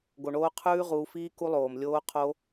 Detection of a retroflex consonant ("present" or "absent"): present